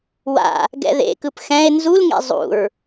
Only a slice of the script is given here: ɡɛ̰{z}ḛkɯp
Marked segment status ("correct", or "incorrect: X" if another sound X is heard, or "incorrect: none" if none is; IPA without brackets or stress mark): incorrect: ð